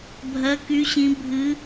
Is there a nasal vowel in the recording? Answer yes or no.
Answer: yes